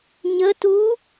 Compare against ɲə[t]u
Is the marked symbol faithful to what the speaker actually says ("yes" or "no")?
yes